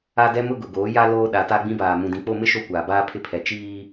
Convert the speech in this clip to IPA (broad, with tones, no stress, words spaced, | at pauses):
a˦dɛ˦mʊ˦ɡʊ˨ ɡoː˨˦ ja˦ loː˦ ɗa˨˦ta˦ɡ͡bĩ˦baː˨ mũ˨dĩ˨k͡po˦˨mɪ˦ ʃo˦˨kʷaː˨baː˦ pʰɪ˦pʰɛ˨ t͡ʃiː˦